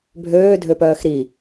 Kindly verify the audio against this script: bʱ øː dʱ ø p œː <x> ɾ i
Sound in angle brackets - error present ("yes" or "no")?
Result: no